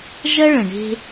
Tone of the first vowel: high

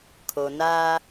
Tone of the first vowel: low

